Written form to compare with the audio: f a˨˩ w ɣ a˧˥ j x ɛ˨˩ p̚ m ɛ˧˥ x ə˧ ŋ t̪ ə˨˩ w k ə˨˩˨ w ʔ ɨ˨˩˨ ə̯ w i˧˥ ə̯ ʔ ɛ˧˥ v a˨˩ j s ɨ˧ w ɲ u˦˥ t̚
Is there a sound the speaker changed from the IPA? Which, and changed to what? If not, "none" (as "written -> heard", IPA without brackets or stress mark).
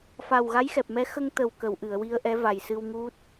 ɲ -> ŋ